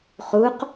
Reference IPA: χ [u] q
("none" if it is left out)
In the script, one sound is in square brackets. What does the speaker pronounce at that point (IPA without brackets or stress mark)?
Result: u